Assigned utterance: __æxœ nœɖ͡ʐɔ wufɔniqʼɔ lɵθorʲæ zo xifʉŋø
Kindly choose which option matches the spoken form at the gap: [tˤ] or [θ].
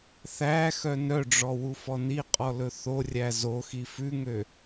θ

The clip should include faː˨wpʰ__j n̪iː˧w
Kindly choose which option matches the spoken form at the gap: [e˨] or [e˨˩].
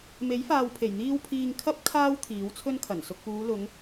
e˨˩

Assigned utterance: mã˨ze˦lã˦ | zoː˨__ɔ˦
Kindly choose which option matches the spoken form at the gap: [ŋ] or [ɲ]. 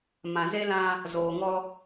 ŋ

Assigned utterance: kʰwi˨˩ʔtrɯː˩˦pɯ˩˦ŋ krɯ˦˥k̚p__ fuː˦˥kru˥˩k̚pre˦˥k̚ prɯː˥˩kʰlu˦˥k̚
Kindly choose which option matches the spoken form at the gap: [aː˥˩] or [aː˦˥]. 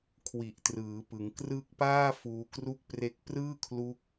aː˥˩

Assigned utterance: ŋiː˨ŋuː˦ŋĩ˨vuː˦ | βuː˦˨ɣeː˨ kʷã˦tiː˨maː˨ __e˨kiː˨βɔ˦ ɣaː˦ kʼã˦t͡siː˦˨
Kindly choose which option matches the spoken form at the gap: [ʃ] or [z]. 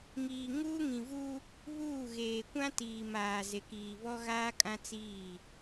z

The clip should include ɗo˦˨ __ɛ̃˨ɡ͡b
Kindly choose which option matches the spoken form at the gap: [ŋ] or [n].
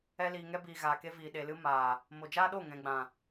ŋ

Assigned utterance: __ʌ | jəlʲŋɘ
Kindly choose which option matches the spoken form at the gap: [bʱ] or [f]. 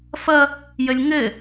f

